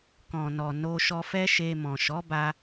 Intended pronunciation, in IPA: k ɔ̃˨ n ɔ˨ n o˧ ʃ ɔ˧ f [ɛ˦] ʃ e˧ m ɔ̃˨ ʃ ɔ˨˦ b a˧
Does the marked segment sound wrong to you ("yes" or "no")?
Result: no